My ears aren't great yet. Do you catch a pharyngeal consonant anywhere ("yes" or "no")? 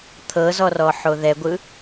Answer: yes